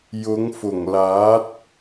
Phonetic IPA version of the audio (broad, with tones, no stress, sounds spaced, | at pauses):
j ʊ˨˧ ŋ f ʊ˨˩ ŋ l aː˨˥ t̚